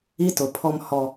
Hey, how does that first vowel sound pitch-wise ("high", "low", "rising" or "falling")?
high